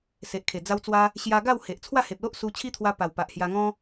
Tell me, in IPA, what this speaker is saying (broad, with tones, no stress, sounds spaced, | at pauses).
s e˨ ʔ kʰ e˨˩ d͡z a˧ w t͡s w a˧ | ɕ j a˧ ɡ a˥˧ w h e˨ ʔ t͡sʰ w a˥˧ h e˨ p̚ l o˦ ʔ s u˧ t͡ɕʰ i˦ t̪ʰ w a˧ p a˨˩ w p a˨ ʔ h j a˧ ŋ ɔ̃˦